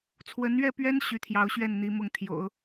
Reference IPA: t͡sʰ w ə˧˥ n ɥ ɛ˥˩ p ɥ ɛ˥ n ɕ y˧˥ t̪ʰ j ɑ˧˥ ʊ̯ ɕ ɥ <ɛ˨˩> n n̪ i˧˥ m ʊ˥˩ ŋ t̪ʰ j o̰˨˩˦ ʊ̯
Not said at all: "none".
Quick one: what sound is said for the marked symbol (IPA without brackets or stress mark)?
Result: ɛ˥˩